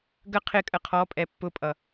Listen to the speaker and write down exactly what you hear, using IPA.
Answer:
ɡə qʰɪkʼə qʰɔpʼɛ pːʊpʼʌ

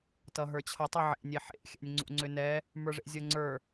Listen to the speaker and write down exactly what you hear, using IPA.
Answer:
tʌɦə˞t͡ɕʰʌ tˤɤʕḛ nʲeħḛ xʲɛ̰nʲŋ͡ǀṵŋ͡ǀʏnɛ | mə˞ʐḛzʲɤŋ͡ǀə˞

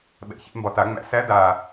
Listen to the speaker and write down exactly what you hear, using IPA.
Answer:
ɓɛ̰˨˩çɛ̰˨˩˦mbɒ˨˩ ta˨˩˦ŋ͡mæ̰˧˥ sæ˧˥ da˨˩

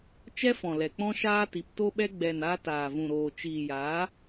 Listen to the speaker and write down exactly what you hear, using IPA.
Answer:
t͡ʃɛ˦fɔ̃˨lɛ˨k͡pɔ̃˦ ʃaː˦ti˨˦pto˦ɓɛ˦ ɡ͡bɛ˨na˧ taː˨vũ˨ɾoː˨ t͡ʃiː˨ja˨˦

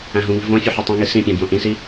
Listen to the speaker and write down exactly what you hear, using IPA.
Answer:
æ̃ɦũŋi̤ võfʲu ħotˤõŋi sĩpʲæ̃ bjõʔĩsi

